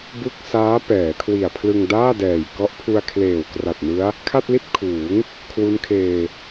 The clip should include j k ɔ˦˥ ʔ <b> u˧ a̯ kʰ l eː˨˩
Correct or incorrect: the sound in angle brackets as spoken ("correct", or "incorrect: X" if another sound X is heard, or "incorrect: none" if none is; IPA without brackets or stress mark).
incorrect: pʰ